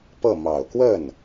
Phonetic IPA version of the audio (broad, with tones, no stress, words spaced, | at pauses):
pɤ˥˩mɑ˨˩ʊ̯ kwə˥˩n